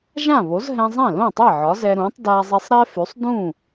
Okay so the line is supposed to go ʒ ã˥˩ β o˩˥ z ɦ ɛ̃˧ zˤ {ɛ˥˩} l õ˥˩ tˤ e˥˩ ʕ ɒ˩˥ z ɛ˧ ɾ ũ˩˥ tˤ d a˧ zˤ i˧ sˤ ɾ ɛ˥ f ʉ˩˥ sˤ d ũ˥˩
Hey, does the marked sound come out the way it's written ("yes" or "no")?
no